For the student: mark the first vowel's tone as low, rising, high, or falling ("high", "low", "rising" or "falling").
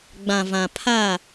low